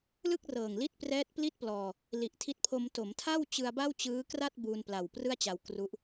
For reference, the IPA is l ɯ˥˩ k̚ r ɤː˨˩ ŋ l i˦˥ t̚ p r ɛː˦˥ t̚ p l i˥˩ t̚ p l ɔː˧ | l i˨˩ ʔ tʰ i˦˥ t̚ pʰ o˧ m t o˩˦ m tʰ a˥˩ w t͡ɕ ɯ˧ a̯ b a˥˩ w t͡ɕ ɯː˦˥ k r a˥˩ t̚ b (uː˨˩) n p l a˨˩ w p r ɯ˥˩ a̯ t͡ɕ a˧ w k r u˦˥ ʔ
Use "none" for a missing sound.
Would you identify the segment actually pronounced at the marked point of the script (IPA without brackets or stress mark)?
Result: uː˧